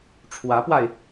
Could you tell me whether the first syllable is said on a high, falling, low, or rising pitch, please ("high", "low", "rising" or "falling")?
rising